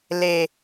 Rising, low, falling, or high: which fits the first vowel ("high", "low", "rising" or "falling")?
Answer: low